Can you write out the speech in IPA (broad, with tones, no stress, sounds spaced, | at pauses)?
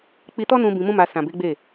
k͡p i˧ t ɔ˦ n ũ˧ b ĩ˧ m ũ˦ m a˧ s ã˨ b e˨˦ ɡ͡b e˦˨